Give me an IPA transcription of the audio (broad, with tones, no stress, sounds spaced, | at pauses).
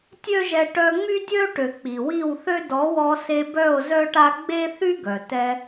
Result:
tʲ ø˦ ʒ ɛ˧ ʈ œ˧ ŋ͡m y˦ dʲ ø˦ ʈ ø˨ k͡p i˨ w i˦˨ w θ ø˦ d ɔ˨˦ w ɔ˧ s e˧ b œ˦˨ o̯ z œ˦ ʈ a˦ ɡ͡b e˦ θ y˦ ɡ œ˨ t ɛ˧